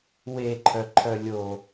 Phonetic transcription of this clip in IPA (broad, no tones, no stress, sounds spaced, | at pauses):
w e ǃʰ œ ǃʰ œ lʲ o